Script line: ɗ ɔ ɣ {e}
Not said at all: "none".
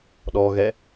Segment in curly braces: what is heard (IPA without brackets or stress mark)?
ɛ